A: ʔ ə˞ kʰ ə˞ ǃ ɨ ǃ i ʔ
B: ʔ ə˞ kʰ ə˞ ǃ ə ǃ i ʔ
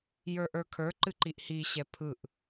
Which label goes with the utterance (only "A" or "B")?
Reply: A